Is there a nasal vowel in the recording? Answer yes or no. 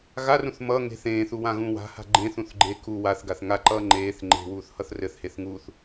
yes